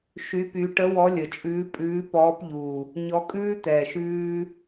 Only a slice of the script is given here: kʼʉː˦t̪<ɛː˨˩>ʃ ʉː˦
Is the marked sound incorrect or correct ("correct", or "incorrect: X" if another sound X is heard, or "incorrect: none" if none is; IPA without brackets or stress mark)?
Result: correct